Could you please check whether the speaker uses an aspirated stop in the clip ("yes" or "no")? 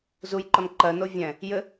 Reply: no